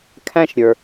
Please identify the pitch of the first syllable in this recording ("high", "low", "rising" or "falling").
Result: high